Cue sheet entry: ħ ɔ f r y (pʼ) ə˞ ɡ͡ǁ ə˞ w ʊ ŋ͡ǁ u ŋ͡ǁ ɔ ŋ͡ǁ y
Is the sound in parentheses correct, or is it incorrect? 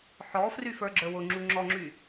incorrect